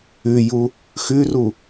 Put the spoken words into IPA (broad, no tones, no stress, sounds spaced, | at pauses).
ʉ j u | x ʉ r u